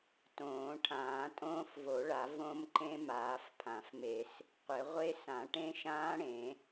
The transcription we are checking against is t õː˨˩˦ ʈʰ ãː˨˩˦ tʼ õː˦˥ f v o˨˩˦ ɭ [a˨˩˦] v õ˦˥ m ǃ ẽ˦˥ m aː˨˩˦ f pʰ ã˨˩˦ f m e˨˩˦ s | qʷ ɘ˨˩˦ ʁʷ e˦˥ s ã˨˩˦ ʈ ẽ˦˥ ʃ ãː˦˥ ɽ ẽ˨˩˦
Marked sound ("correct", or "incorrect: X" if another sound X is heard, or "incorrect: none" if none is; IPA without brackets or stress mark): correct